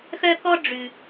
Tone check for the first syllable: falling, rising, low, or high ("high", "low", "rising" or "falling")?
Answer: high